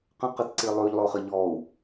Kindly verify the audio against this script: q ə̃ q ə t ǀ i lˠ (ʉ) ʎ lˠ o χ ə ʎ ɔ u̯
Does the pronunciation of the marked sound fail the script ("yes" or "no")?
no